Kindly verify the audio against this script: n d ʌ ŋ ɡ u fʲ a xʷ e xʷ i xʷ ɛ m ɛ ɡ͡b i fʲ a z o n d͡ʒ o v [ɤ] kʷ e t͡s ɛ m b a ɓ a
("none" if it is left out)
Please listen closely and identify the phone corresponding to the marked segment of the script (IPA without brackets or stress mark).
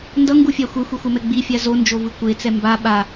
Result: ɯ